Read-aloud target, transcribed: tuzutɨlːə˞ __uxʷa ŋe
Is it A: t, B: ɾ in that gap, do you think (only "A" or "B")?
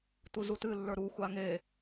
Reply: B